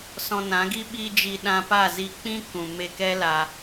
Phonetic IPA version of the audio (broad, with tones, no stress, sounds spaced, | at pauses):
s ɔ̃˧ n ã˨˦ ɡ i˦ ɓ i˧ d͡ʒ i˧ ɗ ã˧ p a˦˨ z i˧ k͡p ĩ˦ k ũ˨ m e˧ k ɛ˦ l a˧